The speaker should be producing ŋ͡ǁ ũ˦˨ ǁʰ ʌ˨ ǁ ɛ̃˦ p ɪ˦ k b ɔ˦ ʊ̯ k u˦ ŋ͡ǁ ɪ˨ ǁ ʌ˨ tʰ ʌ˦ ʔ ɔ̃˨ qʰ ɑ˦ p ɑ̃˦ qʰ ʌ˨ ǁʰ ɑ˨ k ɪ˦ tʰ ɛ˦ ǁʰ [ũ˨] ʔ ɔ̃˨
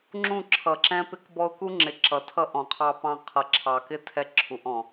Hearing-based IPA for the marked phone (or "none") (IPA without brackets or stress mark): u˨